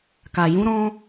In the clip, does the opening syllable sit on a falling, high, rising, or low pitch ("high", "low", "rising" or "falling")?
low